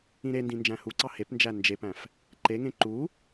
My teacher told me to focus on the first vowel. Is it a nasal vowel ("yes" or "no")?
yes